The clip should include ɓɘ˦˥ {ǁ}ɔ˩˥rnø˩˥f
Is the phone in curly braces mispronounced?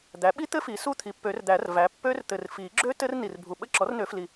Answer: no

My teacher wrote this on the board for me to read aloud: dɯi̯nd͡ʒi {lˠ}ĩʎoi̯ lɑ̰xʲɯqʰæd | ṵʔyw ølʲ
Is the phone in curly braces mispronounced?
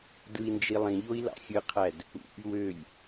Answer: no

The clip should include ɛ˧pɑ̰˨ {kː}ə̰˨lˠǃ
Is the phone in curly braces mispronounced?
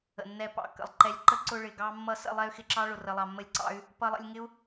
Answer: no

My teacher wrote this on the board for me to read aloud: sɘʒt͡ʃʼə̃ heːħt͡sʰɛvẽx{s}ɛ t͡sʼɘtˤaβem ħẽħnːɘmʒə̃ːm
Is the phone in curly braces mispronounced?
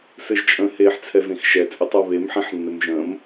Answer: yes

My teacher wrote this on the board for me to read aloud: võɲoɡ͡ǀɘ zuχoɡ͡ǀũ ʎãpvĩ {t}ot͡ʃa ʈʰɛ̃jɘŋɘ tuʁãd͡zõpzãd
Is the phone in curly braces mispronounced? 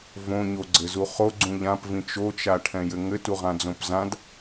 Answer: yes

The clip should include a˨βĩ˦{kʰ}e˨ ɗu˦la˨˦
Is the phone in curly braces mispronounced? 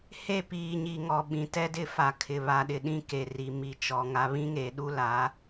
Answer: yes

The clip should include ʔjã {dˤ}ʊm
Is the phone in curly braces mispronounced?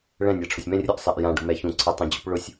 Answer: yes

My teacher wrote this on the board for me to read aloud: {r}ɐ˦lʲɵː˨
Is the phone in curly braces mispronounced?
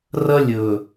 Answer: no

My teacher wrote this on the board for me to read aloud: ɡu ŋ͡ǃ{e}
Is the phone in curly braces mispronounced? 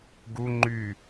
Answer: yes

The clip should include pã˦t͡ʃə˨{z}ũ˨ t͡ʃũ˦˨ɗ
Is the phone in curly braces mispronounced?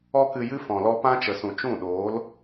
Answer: yes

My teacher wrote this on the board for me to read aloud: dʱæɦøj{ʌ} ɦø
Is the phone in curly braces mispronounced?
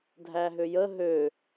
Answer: yes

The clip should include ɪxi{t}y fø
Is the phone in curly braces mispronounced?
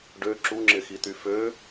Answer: no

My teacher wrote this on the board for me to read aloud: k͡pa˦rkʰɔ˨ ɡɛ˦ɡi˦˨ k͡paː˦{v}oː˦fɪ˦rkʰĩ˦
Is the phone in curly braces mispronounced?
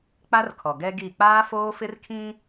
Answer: yes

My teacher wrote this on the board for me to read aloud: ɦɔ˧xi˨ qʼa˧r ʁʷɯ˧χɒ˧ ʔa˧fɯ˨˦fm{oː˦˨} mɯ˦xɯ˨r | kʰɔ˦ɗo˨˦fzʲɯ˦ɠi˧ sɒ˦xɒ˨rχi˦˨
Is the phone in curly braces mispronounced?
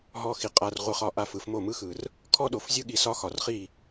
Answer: yes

